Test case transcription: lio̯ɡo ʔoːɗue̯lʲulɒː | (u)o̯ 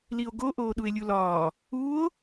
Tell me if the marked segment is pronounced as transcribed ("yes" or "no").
yes